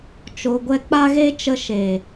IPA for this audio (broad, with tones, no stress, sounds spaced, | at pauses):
t͡ʃ o˧ ɡʷ ɛ˦ k͡p a˦ ɣ e˦ t͡ʃ ə˧ ʃ e˨